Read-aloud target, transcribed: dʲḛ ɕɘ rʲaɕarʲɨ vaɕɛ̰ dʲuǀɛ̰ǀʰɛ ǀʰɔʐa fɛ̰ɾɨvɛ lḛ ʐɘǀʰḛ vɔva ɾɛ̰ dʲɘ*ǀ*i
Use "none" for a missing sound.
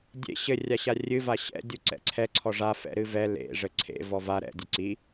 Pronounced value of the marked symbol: ǀ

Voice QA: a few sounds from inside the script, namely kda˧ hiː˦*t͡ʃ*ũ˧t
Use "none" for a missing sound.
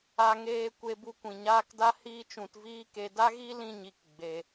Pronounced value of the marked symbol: t͡ʃ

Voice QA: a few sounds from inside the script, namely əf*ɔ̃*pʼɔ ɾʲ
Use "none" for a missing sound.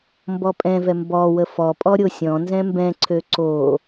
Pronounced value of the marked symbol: ɔ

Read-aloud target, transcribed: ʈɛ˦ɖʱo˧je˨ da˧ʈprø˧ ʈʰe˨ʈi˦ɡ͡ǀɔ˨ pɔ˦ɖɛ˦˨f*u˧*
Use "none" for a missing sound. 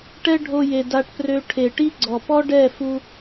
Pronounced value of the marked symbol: u˧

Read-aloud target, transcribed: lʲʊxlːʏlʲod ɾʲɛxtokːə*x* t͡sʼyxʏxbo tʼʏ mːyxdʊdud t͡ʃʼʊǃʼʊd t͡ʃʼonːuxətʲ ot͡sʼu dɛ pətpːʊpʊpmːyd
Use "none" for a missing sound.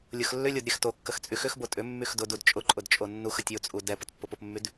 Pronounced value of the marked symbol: x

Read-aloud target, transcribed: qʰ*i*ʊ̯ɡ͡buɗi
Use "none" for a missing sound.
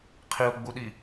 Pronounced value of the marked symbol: i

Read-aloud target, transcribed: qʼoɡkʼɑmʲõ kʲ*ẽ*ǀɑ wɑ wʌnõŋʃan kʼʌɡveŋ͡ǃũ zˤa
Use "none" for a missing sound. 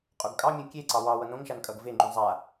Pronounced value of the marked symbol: e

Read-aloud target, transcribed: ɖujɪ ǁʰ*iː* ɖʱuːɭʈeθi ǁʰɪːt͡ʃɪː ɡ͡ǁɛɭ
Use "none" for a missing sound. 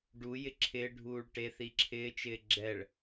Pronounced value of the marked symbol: ɪː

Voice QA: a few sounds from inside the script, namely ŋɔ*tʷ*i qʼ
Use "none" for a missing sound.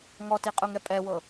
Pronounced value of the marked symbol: t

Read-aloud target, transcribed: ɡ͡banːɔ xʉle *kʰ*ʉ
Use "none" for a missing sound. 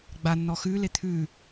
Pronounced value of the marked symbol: t̪ʰ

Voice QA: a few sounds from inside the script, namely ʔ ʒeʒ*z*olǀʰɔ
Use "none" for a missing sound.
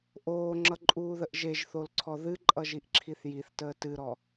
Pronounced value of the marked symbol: θ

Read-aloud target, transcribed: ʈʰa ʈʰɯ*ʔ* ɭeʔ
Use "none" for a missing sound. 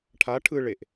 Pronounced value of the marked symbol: none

